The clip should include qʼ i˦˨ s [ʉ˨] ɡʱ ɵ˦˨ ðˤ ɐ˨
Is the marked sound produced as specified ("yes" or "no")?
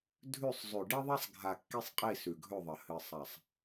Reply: yes